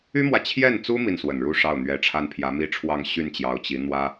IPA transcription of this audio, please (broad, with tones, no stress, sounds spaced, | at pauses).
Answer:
y˥ m w ä˨ t͡ɕʰ j ɛ˥˩ n t͡s u˥ m i˥˩ n s w ə˨˩ n ɻ u˥˧ ʂ ɑ˥˩ ʊ̯ n̪ ɥ ɛ˧˥ ʈ͡ʂʰ a˥ n pʰ j ä˧˥ m i˥ ʈ͡ʂʰ w ɑ˥˧ ŋ ɕ y˥˩ n t͡ɕ j ɑ˧˥ ʊ̯ t͡ɕ i˧˥ n̪ w ä˥